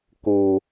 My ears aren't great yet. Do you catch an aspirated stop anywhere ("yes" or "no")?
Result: no